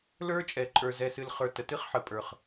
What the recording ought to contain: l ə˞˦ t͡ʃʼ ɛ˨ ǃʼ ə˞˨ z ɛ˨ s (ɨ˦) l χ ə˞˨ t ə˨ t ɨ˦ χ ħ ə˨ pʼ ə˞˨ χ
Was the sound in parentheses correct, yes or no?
no